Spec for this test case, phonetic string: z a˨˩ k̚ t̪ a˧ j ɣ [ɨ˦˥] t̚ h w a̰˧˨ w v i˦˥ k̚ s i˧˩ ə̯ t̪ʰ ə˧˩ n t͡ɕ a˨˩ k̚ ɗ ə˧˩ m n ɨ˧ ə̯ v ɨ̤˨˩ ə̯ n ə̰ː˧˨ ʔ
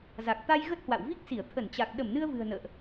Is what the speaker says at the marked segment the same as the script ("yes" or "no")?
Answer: no